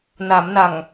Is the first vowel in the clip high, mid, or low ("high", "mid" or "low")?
low